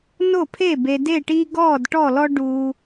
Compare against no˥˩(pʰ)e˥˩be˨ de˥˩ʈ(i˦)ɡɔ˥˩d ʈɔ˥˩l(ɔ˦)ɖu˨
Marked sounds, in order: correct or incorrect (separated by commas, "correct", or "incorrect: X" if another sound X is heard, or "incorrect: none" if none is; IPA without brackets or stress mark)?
correct, correct, correct